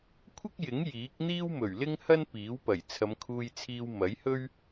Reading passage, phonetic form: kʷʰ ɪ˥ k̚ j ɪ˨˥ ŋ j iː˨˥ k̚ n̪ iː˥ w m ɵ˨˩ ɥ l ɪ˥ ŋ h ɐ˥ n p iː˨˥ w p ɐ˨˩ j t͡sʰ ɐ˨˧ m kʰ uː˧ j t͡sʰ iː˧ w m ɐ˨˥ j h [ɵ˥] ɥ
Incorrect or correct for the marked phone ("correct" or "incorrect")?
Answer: correct